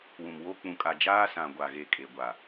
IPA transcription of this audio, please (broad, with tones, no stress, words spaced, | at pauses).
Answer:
wũ˨mwo˦ k͡pũ˨kʼa˨ d͡ʒaː˦sã˨ɡʷa˨ɣe˨ kʼe˨ɡʷa˨